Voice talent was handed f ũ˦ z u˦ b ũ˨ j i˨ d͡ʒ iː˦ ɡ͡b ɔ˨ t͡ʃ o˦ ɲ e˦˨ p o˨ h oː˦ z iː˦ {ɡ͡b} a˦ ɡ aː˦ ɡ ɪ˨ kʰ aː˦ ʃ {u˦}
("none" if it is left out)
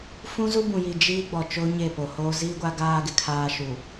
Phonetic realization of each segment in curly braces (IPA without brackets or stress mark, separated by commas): ɡʷ, u˨